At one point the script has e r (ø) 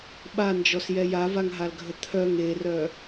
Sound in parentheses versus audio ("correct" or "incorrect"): incorrect